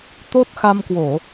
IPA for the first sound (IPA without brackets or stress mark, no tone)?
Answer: t̪